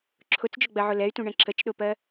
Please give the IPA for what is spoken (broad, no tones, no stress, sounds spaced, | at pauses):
ǁʰ ʊ t͡s d͡ʒ ʊ ɡ͡b ɜ ʕ ʊ l ɛ y̯ t ũ ɳ ɛ̃ ǁ ə t͡ʃ ɗ ʊ p ɜ